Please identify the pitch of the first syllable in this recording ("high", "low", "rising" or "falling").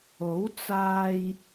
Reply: rising